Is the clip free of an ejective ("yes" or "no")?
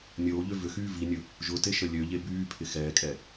no